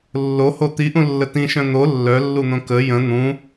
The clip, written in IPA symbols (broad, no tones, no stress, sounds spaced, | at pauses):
lː o h o t̪ i ʔ ũ lː ə t ĩ ʃ œ̃ n̪ o lː œ lː u n̪ õ k ə j ə̃ n̪ ũ